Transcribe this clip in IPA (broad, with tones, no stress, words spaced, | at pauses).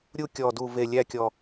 ɾʲu˥˧ kʲɔ˨˩du˨˩ve˨˩ lʲæ˥˧kʲɔ˨˩